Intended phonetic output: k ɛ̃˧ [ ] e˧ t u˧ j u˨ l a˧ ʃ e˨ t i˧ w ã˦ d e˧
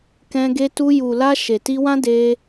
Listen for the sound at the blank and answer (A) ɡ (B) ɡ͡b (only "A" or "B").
A